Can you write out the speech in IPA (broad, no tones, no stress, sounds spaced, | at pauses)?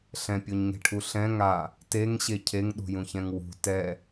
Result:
ɬ ɛ̃ pʲ o ɲ ŋ e̤ ʈʰ u ɬ ɛ̃ ŋ a | t e ŋ ɕ e cʰ e ŋ ɗ ṳ j ũ ç ɛ̃ ŋ w ṳ t ɛ